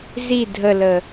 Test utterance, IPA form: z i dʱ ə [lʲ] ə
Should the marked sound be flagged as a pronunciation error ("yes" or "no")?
yes